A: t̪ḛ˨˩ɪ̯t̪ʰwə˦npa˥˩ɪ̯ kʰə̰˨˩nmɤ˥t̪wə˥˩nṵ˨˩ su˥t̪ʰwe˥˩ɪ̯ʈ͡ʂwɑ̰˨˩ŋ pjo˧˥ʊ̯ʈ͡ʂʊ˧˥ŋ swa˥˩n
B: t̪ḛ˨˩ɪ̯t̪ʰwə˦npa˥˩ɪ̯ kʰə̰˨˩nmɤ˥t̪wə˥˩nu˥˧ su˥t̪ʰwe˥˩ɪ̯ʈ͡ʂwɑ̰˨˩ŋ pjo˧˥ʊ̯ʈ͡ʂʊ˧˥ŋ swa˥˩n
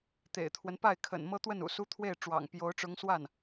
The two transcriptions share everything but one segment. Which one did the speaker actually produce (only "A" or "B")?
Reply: A